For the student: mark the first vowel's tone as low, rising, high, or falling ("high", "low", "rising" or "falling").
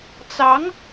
rising